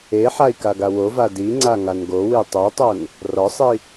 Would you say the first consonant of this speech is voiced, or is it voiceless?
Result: voiceless